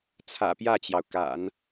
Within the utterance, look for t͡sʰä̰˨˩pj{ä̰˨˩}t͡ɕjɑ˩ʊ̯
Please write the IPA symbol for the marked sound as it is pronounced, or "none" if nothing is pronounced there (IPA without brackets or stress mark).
ä˥˩